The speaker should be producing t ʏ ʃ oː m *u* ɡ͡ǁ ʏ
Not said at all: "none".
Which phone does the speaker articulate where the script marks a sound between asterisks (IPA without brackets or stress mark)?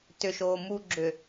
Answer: u